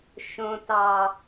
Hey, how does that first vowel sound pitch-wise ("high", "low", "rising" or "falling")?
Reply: low